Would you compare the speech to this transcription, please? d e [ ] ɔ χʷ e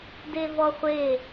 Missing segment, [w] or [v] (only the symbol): v